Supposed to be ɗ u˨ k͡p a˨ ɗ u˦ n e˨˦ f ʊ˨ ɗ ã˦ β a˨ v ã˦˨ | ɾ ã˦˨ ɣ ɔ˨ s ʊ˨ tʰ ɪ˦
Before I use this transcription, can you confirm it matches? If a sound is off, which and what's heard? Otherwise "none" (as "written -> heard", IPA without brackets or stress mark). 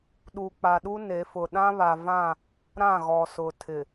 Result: ɪ˦ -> ɪ˨